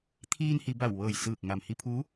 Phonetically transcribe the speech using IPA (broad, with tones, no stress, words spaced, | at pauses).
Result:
t̪ʰiː˧nhi˩˧ ba˧˩wʋɤː˧˩j sɯː˧˩k̚ŋa˩m hi˧pʰuː˧˥